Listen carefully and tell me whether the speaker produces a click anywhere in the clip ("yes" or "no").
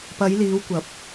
no